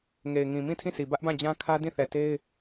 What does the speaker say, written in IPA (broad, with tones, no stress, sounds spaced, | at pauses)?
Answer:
ŋ e˨ ɪ̯ ŋ ĩ˨ m ĩ˦˨ tʰ ĩ˦˨ sʰ i˨ b ä˦ ʔ b ã˦˨ d͡ʑ ã˦ kʰ ä˦ d ĩ˦˨ θ ɛ˨ t e˦ ɪ̯